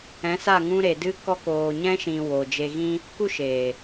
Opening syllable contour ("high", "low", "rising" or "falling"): rising